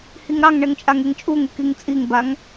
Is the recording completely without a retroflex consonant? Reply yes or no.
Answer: no